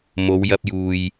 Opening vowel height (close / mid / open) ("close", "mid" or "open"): mid